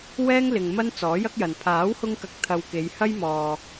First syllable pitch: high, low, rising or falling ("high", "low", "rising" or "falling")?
high